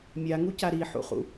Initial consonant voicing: voiced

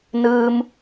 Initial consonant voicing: voiced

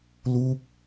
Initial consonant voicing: voiced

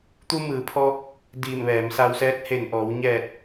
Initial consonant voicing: voiceless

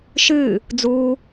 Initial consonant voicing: voiceless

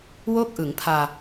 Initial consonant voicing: voiced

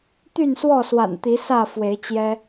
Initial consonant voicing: voiceless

